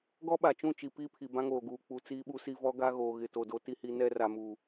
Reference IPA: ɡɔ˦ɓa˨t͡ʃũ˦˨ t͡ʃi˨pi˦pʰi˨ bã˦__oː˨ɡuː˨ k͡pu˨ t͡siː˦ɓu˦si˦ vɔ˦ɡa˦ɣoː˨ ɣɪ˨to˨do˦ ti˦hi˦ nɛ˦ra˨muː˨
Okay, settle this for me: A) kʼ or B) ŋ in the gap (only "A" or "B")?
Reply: B